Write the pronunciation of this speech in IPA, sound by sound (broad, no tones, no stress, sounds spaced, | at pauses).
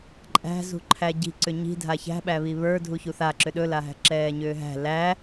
ǃʼ æ̤ z ṳ ǃʰ æ ɟ i̤ ǀ ʏ ɲ i̤ dʱ a ç æ̤ ɓ æ β i β ə˞ dʱ u ç u θ a ǁ ʏ ɗ ɵ l a ɦ æ̤ ǁ ɛː ɲ ʏː ɦ æ̤ l æ